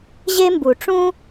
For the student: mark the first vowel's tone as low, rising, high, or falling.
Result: high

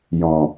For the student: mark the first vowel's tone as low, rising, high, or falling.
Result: low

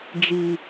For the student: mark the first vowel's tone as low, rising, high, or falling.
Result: low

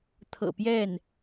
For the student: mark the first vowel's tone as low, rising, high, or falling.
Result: low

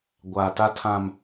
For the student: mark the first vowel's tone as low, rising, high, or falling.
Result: low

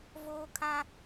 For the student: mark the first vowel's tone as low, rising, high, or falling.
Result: high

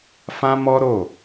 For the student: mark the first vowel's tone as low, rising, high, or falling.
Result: high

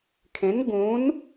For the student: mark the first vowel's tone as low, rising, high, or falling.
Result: rising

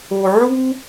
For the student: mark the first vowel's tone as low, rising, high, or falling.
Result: low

